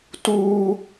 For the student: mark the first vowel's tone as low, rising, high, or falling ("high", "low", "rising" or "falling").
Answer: high